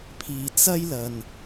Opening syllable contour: low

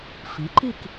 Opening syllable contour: rising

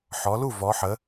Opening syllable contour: rising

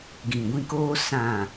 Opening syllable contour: low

